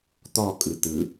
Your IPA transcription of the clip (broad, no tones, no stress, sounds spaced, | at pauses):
t̪ ɔ kʼ ɯ t̪ ɯ